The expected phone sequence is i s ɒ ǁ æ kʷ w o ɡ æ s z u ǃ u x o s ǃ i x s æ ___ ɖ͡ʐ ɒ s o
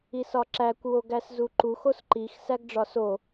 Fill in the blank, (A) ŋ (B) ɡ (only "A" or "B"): B